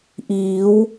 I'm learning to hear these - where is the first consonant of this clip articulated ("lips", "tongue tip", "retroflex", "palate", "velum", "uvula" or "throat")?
throat